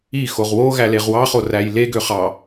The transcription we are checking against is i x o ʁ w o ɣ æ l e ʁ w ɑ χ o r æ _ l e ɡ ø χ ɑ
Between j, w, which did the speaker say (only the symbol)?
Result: j